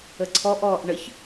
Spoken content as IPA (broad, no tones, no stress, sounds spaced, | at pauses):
ə ǀʰ ɔ ʔ ɔː ʔ ɳ ə ç